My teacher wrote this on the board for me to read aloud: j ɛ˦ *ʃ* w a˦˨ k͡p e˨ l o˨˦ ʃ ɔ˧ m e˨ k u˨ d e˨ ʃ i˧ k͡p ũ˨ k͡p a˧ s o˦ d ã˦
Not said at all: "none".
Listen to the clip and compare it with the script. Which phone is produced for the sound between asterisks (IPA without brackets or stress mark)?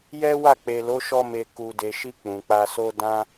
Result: none